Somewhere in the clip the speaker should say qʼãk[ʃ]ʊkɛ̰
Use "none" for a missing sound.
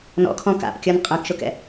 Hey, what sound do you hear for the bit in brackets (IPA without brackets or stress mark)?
ʃ